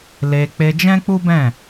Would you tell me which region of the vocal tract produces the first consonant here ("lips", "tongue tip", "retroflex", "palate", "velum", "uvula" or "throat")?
tongue tip